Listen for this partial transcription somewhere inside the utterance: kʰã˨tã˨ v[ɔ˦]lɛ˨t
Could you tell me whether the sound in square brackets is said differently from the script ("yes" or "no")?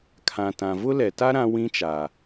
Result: yes